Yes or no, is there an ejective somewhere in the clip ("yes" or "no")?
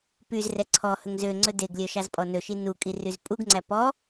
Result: yes